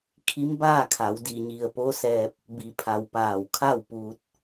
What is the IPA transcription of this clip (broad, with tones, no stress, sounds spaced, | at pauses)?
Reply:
kʰ i˧˥ m b a˥˨ kʰ a˩˧ w d i˧˩ ɲ i˧˩ ə̯ p o˧˥ s ɛː˧ p̚ | b i˩˧ pʰ a˩ w p aː˧˩ w kʰ a˥˨ w p uː˧ t̚